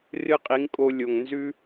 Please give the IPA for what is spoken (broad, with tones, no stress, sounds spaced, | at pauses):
r ɨ˦ qʼ i˨˦ ŋ kʼ o˧ lʲ o˨ ŋ n z ʉ˦